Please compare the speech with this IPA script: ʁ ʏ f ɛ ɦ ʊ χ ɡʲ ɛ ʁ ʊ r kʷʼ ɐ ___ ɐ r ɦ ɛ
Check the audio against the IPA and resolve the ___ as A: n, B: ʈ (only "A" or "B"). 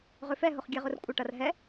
B